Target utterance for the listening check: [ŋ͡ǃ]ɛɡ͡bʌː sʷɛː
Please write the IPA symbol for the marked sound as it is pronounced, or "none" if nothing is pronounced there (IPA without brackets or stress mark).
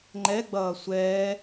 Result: ŋ͡ǃ